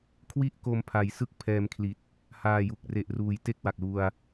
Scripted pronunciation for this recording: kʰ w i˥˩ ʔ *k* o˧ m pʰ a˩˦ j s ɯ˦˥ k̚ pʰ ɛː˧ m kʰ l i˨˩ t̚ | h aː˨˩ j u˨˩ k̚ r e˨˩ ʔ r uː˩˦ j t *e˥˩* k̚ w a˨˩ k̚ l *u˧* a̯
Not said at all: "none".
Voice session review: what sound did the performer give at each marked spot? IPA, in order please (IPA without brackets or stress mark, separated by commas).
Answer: k, e˥˩, u˧